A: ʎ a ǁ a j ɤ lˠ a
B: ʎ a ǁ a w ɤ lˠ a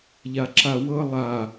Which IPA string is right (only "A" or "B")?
B